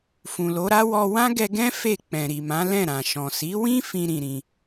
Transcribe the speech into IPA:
f ũ˨ l o˨˦ ɾ a˦ w ɔ˧ w ã˦ ɡ ɛ˧ ɡ ɛ̃˦ f e˦˨ k͡p ɛ̃˨ ɾ i˨ m ã˨˦ l ɛ̃˦˨ ɾ ã˨ ʃ ɔ̃˨ s i˨˦ w ĩ˦ f ĩ˦ ɾ ĩ˧ ɾ ĩ˧

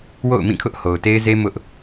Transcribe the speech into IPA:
w o̰˦˨ ʊ̯ m ĩ˦˨ kʰ ʊ˦ ʔ h o˨ ʊ̯ t e˦ ɪ̯ z e˦ m ʊ˦ ʔ

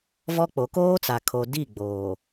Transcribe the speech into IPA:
v ɔ˦ k͡p o˨˦ k oː˦ t͡s a˨ kʰ o˨ d i˦˨ ɡ͡b oː˨

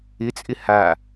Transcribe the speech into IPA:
ɪ t͡sʼ ɪ h a

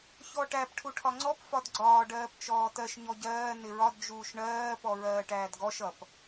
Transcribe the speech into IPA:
ç ɔ ʈ æ p ʈʰ u ʈʰ ɒ ŋ͡ǀ ɔ p f ɒ d ɡ͡ǀ ɒː ɖ ɜː p t͡ʃ ɔː t ɜ ʃ ɲ ɔ ɟ ɜː n ɪ ɹ ɒ d d͡ʒ uː ʃ ɳ ɜː p ɔ ɹ ɜː ʈ æː d ɡ ɔ ʃ ʌ p

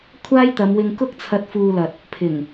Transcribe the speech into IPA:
kʷʰ aː˥ j t̪ ɐ˨˧ m w ɪ˧ ŋ k ʊ˥ k̚ t͡sʰ ɐ˧ t̚ f uː˧ l ɐ˨ t̚ | pʰ ɪ˨˩ ŋ

